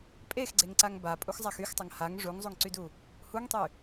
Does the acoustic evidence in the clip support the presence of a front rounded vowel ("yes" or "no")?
yes